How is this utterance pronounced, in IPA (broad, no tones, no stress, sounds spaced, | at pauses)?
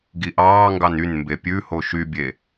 ɡ i ʔ ɑː ŋ ɡ ɑ n y n m b e pʲ ʉ h o ʃ y bʲ e